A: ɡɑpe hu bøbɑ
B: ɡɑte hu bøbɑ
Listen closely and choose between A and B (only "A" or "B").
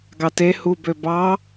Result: B